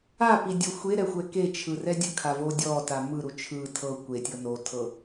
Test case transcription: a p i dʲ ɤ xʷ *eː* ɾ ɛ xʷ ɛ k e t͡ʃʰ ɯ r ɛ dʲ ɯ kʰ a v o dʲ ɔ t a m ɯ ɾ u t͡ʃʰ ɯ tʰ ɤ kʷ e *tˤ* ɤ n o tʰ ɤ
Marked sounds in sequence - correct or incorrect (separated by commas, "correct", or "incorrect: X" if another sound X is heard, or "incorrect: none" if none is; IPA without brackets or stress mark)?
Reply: incorrect: e, incorrect: tʲ